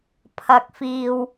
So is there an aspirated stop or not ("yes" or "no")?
yes